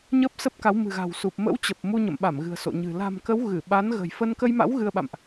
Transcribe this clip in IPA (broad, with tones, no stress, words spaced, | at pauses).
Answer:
ɲə˦˥p̚sə˦˥p̚ka˨˦w mɨ̤˨˩ɣa̤˨˩wsu˨˩p̚ mə̰˧˥w t͡ɕə˨˩p̚mu˧ɲə̰˧˨mɓa˧˩m ɣɨ̤˨˩ə̯so̰˧˨ɲɨ̤˨˩ la̤˨˩mkə˨˦w ɣɨ˧˩ ɓa˨˦nɣə̤˨˩jfə˧n kə˧jma̰˧˥w ɣɨ˧ə̯ɓa̰˧˨mʔ